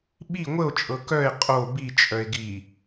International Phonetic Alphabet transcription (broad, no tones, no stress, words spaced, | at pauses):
ɓi ŋʷəo̯t͡ʃʼɤ kœe̯ qʼo bit͡ʃʼœe̯ ɡi